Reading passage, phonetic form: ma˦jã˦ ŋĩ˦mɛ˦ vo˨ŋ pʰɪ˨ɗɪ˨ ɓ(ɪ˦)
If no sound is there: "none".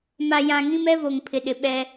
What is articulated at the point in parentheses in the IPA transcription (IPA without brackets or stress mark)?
ɛ˦